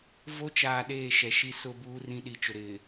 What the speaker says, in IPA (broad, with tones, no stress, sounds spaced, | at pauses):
v o˦ t͡ʃ aː˨ ɗ eː˦˨ ʃ ɛ˨ ʃ i˦ s ʊ˦ b uː˦ r ĩ˦ ɗ i˨ t͡ʃ ʊ˨ ɾ ɪ˨